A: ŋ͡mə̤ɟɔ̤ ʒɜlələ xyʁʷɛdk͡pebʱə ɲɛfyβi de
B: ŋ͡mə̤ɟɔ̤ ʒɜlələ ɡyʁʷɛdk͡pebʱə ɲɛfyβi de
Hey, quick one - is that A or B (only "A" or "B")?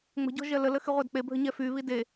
A